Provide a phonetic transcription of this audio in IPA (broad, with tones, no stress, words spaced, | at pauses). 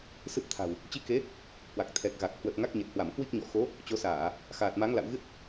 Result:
sɨ˦˥p̚t̪ʰa̤˨˩w | t͡ɕi˧ke˨˦ | hwa˨˩k̚ t̪ʰɛ˨˩k̚ɣa˨˩k̚ hwə˨˩t̚ ŋa˦˥k̚ɲe˨˩t̚hwa˧˩m kwi˦˥k̚ɲɔ̰˧˨ xo˨˦ | t͡ɕo˨˦ saː˧˩˨ | xaː˨˩t̚ma˨˦ŋla̰˧˨wɣɨ˦˥t̚